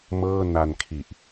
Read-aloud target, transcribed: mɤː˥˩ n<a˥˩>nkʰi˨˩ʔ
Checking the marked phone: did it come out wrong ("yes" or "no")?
yes